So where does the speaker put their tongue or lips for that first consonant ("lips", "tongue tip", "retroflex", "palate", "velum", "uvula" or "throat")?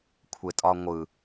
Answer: velum